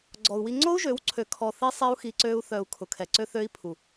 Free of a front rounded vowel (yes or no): no